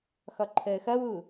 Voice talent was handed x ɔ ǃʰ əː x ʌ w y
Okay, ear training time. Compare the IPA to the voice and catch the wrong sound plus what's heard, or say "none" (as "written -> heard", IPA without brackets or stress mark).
y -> u